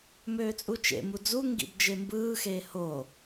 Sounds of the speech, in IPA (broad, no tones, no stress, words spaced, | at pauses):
møːt͡sʼut͡ʃḛ mud͡zu ŋɡḭbd͡ʒembɯː xeːho